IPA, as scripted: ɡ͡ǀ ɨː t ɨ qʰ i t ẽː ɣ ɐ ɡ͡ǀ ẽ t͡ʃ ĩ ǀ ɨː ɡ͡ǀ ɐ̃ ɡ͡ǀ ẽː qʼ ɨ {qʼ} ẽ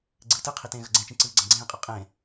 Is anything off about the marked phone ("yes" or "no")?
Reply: no